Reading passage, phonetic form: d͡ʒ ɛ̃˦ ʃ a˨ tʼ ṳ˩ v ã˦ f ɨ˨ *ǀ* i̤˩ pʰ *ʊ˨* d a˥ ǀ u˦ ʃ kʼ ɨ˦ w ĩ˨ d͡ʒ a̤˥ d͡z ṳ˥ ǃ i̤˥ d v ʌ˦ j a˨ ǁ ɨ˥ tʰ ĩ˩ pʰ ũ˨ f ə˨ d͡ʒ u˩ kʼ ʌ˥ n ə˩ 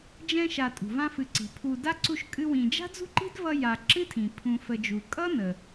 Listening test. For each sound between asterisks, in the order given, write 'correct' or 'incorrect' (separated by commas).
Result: correct, incorrect